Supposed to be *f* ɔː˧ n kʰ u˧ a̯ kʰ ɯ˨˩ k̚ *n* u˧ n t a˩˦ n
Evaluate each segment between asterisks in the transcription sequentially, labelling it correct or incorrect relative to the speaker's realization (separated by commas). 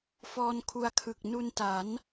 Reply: correct, correct